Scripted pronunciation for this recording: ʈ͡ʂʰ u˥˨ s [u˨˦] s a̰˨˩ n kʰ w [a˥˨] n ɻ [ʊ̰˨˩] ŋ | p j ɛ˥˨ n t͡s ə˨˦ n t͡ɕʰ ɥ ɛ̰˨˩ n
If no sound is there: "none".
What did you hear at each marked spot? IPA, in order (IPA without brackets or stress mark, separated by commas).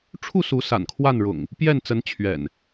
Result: u˨˦, a˥˨, ʊ̰˨˩